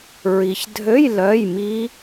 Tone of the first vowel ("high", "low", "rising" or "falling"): low